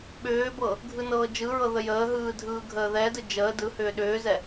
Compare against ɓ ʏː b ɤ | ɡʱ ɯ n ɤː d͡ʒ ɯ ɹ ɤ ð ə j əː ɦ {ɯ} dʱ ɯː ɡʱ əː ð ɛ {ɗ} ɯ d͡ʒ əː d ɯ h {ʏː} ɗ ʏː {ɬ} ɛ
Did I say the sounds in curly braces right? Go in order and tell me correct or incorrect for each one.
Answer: incorrect: ɯː, incorrect: d, correct, incorrect: z

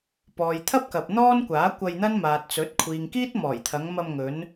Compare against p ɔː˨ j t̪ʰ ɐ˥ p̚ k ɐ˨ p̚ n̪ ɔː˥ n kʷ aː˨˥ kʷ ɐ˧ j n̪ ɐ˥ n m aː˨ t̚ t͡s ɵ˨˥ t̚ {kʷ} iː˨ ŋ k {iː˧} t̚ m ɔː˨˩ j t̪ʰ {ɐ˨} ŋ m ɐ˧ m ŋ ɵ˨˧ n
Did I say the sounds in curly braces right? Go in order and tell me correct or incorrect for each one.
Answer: incorrect: kʷʰ, incorrect: iː˥, incorrect: ɐ˨˧

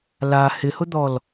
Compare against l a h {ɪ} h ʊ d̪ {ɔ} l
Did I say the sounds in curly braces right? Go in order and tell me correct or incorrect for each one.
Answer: correct, correct

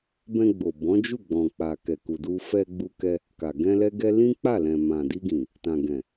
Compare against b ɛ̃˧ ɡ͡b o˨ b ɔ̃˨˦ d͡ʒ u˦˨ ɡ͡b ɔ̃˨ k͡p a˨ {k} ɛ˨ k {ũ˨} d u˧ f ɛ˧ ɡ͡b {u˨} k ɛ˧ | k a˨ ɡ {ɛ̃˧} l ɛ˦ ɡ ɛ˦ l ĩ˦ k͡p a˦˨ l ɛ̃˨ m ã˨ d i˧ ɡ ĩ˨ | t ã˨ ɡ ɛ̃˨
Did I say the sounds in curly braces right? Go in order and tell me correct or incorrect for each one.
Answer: correct, incorrect: u˨, incorrect: u˧, correct

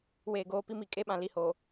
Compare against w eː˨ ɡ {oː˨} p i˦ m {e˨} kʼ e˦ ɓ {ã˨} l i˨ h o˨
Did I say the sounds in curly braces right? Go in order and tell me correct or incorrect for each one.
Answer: correct, incorrect: i˨, correct

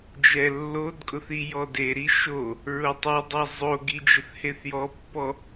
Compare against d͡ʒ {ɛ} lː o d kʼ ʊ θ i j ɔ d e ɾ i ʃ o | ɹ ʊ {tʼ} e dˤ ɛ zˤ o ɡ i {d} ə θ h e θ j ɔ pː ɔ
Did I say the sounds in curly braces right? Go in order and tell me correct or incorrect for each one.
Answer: correct, incorrect: tˤ, incorrect: d͡ʒ

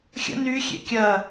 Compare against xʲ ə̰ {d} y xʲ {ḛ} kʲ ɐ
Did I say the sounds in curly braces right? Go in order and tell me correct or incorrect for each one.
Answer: incorrect: n, correct

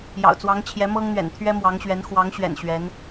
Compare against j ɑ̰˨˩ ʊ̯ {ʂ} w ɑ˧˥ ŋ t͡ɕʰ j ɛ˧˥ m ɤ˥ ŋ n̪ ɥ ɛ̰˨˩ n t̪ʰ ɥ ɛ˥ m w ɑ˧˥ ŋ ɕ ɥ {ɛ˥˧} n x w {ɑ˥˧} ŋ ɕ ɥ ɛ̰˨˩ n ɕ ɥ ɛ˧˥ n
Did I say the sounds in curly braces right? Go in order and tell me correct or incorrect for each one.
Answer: incorrect: t͡s, incorrect: ɛ˧˥, incorrect: ɑ˧˥

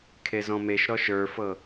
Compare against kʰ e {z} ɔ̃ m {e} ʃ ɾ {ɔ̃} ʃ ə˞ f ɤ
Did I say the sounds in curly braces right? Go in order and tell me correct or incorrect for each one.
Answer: correct, correct, incorrect: ɔ

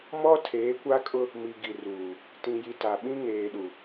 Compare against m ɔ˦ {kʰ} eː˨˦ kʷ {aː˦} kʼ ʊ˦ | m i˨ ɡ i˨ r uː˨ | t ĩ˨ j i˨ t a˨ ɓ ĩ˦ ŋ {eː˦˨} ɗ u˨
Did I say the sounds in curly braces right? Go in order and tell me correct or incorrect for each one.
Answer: incorrect: tʰ, incorrect: a˦, incorrect: eː˨

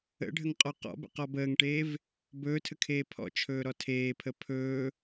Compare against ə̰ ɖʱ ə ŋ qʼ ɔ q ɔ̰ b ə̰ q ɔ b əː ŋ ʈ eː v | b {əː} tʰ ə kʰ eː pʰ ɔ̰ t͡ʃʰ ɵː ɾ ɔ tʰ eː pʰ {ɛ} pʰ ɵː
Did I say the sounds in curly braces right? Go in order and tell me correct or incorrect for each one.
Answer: incorrect: ɵː, incorrect: ə

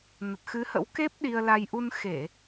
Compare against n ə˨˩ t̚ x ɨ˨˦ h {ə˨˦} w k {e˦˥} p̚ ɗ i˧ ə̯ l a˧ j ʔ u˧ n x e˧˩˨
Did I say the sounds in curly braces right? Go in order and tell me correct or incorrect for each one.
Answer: incorrect: ə̰˧˥, correct

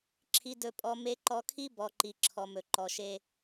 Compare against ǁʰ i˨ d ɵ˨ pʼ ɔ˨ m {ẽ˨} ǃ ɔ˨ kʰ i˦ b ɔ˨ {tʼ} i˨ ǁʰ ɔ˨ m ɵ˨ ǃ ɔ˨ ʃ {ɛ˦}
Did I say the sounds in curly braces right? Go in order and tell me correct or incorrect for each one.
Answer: incorrect: e˨, incorrect: ǃ, incorrect: e˦

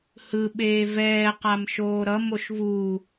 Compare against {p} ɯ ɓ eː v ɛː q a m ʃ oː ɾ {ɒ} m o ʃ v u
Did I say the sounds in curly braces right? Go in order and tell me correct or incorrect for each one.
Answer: incorrect: h, incorrect: ʌ

